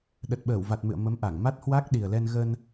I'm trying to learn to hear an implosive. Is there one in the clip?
yes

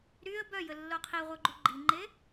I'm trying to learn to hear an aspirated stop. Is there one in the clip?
yes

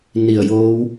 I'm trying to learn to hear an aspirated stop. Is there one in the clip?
no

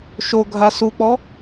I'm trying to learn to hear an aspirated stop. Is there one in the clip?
no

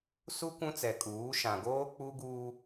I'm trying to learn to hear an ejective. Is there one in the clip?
yes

